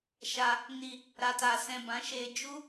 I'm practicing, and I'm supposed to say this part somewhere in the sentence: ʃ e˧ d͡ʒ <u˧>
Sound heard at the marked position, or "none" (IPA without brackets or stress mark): u˦